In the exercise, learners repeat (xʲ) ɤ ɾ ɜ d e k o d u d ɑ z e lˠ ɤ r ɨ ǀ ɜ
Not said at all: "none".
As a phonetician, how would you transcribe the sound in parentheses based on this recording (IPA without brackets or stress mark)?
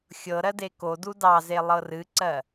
xʲ